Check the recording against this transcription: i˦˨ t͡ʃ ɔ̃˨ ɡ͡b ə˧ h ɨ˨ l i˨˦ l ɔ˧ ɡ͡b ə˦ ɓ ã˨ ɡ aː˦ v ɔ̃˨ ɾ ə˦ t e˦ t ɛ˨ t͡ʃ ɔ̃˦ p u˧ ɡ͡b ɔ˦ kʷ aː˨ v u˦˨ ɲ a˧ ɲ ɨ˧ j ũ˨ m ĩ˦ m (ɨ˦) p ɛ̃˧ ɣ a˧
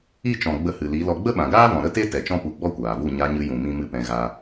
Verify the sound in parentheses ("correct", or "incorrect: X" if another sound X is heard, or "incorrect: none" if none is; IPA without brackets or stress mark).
correct